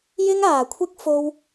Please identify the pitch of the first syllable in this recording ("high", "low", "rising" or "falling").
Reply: high